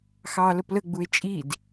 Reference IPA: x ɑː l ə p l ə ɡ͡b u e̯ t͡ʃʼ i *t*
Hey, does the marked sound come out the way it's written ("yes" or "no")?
no